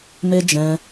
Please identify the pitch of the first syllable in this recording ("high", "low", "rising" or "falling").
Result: high